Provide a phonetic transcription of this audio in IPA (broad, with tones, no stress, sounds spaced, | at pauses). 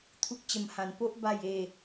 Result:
t̪ʰ u˦ k̚ t͡ɕ ə˧ m h ã˧ n p o˦ ʔ b a˥˧ j e˥˧